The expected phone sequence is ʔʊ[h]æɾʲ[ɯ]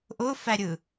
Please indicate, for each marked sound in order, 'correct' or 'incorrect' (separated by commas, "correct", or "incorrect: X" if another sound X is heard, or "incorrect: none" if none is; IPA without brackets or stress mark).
incorrect: f, correct